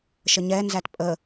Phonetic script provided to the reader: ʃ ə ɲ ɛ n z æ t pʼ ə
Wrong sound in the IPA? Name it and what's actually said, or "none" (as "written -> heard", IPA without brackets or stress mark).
none